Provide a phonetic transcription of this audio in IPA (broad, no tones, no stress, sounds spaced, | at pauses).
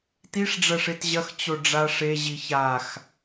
t i ʂ ɖ͡ʐ ɐ ʂ e t ʑ ɐ x t͡ɕ o ɖ͡ʐ a ʂ e ʑ i ç a x